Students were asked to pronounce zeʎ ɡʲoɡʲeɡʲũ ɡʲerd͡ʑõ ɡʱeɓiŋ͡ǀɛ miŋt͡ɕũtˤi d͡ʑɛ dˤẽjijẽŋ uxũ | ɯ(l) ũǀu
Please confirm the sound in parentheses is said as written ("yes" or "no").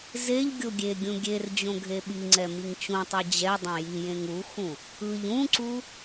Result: no